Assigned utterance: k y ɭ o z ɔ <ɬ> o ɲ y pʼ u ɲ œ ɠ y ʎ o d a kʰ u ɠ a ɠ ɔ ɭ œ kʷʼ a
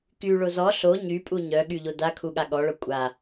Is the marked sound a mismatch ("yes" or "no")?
no